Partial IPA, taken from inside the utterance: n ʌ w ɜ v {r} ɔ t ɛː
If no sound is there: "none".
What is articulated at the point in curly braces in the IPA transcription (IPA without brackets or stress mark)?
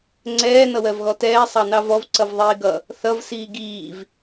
ɣ